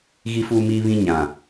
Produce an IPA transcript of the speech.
ɣ i˦ f uː˦ m iː˦ β ĩ˦ ɲ ã˨

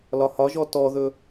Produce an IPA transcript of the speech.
l ɒ h ɒ ʒ ɔ t ɔ ð ɵ

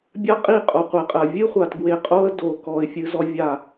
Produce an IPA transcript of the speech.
bʲ a˦ qʼ i˦˨ qʼ o˨ qʷ e˨ qʼ ɜ˨ vʲ ɨ˦ χʷ a˨ t ɡ w e˨ qʼ o˦ ə̯ d o˨ k ɔ˨ ɪ̯ fʲ ɨ˦ z ɔ˦ vʲ a˦˨

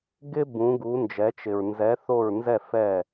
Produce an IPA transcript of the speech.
ɡ ɪ˦ b ũ˩˧ ɡ u˩˧ n d͡ʒ ɛ˩˧ t͡ʃ ɪ˩ ɹ n z ɛ˩˧ θ o˧˩ ɹ n z ɛ˧˩ f ɛ˧˩

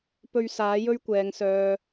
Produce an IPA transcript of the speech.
p ɵ˧ ɥ s aː˨˥ j ɵ˥ ɥ kʷ ɛː˨ ŋ s œː˨

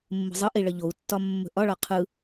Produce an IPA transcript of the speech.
mː ə̤ zˤ ɯ ʔ i ɭ ə ʎ o u̯ tː ɒ mː ə̤ ʔ ɒ ɭ ɒ qʰ ɯ

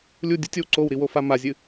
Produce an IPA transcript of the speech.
lʲ u dʲ u tʲ o w ǀ o w ɾ i w o f a m a zʲ ɨ

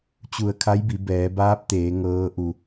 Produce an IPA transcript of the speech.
t͡ɕ u˧˩ ə̯ kʰ a˧˥ j b i˩˧ b ɛː˩˧ b aː˧˥ p̚ t̪ eː˩˧ ŋ ɤː˧˥ ʔ u˧

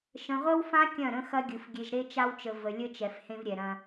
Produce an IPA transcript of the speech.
ʃ ə̃˨ ʁʷ ə˦ w f ã˦ kʲ ɐ̃˦˨ ɾ ə̃˦ x ɐ˦ ɡʲ ɯ˨ f ɡʲ e˨ ʒ ɾ e˦ t͡ʃ a˦ w t͡ʃ ə˨ v ə˨ lʲ ə˦ t͡ʃ ɛ˨ f h ẽ˦ v ɾʲ ɛ˨ ɾ ɐ̃˦

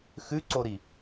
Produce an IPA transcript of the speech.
x ʉ ǀ o ɾ i

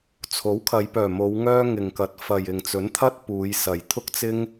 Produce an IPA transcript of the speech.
t͡sʰ o˨˥ w kʰ ɐ˨˧ j p œː˨˩ m o˨˧ w ŋ œː˥ ŋ ɪ˨˩ ŋ k ɐ˨˥ t̚ f ɐ˨ j ɪ˨ ŋ t͡s ɵ˨˥ n t̪ʰ ɐ˥ t̚ p uː˨˧ j s ɐ˨˩ j t̪ʰ ʊ˥ k̚ t͡s ɪ˥ ŋ

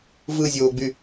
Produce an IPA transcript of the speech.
v ɯ zʲ oː ɡ͡b y

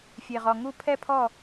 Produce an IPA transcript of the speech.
fʲ e˩ ʁ ɔ˩ ŋ u˥˩ pʰ ɛ˥ pʰ ɔ˥˩

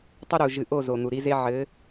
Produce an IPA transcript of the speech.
tˤ ɘ˦ ɾ u˨ ʒ ɨ˨ ʔ o˦˨ z o˨ n̪ u˨ ɾ i˦ z e˦ ʕ ɘ˨˦

